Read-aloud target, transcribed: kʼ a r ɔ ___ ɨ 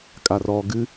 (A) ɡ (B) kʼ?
A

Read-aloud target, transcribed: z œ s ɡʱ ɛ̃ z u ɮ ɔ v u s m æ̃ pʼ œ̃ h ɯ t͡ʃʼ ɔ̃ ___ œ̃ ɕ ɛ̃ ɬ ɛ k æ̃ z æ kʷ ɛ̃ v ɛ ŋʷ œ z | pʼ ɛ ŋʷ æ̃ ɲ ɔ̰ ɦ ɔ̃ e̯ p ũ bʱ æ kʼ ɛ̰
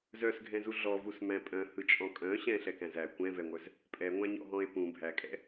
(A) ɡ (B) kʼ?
B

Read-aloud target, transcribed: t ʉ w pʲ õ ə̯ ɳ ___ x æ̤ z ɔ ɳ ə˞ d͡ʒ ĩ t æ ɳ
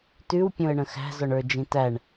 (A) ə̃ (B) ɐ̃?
A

